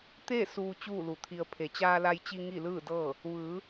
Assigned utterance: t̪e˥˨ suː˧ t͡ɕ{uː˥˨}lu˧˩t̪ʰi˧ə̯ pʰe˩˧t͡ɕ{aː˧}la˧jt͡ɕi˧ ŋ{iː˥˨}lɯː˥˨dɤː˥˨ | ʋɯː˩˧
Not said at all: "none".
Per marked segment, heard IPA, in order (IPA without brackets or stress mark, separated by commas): uː˥˨, aː˧, i˥˨